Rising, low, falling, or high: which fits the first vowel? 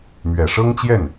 low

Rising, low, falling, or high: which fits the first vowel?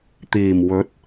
low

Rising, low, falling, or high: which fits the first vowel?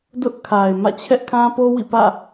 high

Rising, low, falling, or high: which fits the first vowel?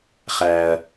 low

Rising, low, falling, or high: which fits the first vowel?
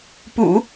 low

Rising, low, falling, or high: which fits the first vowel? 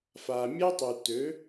low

